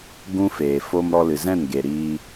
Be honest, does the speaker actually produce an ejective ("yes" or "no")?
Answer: no